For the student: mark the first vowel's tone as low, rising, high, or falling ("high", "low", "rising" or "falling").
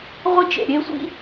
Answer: high